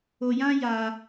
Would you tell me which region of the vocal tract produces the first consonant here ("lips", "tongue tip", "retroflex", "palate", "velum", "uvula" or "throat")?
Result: palate